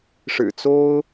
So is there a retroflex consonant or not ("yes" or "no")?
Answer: yes